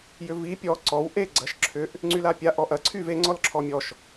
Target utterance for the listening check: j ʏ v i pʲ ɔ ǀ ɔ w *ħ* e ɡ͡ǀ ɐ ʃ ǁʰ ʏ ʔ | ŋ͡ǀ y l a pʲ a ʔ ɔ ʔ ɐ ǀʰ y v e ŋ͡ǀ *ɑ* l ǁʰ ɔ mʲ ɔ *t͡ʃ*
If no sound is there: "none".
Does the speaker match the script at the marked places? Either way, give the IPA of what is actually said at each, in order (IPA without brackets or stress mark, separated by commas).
ʔ, ɔ, ʃ